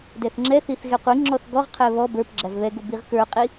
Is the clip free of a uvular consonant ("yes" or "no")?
no